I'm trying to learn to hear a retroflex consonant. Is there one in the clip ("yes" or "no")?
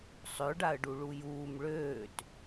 yes